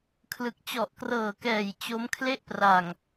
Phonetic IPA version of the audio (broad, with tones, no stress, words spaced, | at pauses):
kʰlɯ˨˩k̚t͡ɕɔ˨˩ʔkrɤː˨˩kɛː˨˩j t͡ɕo˦˥m kʰle˥˩ʔpra˨˩ŋ